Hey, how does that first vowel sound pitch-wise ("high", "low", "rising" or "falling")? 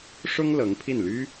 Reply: high